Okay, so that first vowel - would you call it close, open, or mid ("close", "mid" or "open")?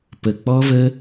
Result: mid